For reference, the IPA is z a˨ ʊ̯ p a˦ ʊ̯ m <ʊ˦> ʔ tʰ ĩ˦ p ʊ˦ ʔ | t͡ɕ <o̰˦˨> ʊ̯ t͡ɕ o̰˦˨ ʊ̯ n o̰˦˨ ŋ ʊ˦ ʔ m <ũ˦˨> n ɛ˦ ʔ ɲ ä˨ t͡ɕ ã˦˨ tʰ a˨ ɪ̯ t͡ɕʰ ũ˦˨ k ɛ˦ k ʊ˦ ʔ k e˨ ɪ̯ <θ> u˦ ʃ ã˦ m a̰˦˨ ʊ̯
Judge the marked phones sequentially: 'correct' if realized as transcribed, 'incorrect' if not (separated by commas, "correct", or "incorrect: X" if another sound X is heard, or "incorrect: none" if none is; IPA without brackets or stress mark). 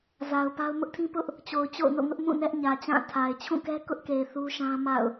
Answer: correct, incorrect: o˨, correct, correct